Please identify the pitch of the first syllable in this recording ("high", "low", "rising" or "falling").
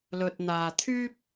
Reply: low